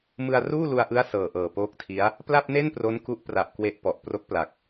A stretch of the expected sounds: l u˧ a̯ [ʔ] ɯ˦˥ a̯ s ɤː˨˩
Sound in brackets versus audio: correct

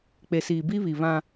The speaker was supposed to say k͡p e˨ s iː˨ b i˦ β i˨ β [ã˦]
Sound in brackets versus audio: correct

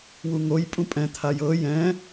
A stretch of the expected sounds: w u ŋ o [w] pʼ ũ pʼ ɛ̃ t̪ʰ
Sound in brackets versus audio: incorrect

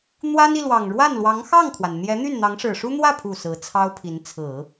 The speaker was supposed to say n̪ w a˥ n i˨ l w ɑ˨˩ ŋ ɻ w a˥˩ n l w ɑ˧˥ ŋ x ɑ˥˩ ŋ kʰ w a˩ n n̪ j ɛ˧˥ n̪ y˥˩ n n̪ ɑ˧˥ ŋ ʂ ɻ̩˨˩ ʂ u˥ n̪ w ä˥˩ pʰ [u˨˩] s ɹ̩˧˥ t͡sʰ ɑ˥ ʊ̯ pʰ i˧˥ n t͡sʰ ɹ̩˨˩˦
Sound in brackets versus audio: correct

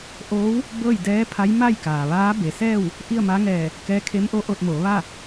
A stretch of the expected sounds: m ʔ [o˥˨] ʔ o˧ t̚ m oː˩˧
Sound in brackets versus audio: incorrect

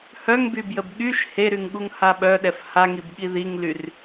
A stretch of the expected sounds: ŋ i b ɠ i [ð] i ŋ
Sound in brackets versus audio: correct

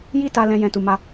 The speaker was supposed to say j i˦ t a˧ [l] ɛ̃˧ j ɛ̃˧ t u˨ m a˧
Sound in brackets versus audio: correct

